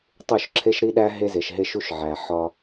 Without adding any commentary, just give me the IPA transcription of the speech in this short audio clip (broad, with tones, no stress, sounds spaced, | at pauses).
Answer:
tˤ u˦˨ ʃ ǁʰ e˦ ʃ ɾ i˦ ɗ æ˦ ɦ e˦ z e˨ ʃ ɦ e˦ ʃ u˦ ʃ ʕ æ˨ ħ ɒ˦